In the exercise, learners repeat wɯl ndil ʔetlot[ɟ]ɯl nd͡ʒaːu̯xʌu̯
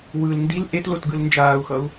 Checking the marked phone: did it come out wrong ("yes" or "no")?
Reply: yes